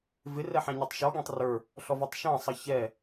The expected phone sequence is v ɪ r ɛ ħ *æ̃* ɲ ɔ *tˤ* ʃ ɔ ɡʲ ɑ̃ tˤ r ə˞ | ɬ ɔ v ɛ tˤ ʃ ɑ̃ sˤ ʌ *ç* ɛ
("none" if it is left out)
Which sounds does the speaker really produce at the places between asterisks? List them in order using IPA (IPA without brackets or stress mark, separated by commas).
æ̃, tˤ, ç